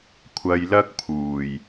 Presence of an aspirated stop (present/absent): present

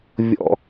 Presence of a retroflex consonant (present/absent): absent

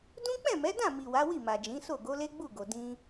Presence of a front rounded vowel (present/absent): absent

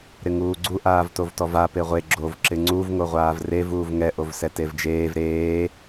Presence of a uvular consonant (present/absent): present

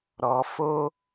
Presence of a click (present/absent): absent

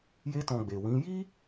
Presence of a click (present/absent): absent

